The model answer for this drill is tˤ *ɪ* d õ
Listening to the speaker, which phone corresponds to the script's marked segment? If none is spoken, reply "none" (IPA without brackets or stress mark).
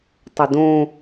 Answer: ɪ